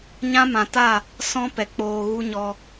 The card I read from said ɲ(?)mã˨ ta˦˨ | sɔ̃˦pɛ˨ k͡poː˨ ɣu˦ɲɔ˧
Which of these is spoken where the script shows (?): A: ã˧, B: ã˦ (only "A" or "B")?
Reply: B